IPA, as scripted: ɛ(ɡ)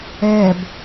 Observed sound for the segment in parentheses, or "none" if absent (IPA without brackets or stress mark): b